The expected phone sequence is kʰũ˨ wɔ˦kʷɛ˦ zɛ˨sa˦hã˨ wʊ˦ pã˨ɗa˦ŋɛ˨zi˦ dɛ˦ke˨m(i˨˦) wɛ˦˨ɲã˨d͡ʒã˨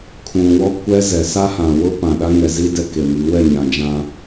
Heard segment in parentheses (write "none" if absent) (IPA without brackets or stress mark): i˨˦